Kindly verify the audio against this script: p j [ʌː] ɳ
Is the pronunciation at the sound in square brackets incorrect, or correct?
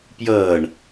correct